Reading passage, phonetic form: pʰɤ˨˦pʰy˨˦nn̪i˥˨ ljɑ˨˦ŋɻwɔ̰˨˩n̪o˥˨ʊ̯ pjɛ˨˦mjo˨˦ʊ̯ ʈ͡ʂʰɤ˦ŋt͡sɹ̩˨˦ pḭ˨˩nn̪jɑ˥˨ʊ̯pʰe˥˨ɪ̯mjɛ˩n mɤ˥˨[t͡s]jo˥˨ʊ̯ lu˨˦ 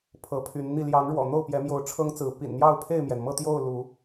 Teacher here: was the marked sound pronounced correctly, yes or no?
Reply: no